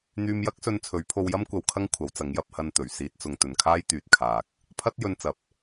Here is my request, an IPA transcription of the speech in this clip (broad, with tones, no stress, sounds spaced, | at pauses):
n̪ yː˧ m j ɐ˥ k̚ s ɵ˧ n t͡sʰ ɵ˨˥ ɥ pʰ o˧ w j ɐ˥ m kʷ ɐ˧ w kʰ ɐ˥ ŋ kʷʰ ɐ˨˥ w t͡s ɐ˨˥ ŋ j ɐ˨˥ p̚ h ɐ˧ n t̪ ɵ˨˩ ɥ s iː˨ t̚ t͡s ʊ˨ ŋ t̪ ɵ˨ n kʰ aː˥ j t̪ yː˨ t̚ kʰ aː˨ k̚ | pʰ ɐ˥ t̚ j ɵ˧ n t͡s ɐ˨ p̚